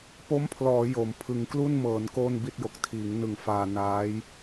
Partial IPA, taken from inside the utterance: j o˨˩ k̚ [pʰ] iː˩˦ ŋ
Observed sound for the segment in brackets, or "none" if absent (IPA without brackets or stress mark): tʰ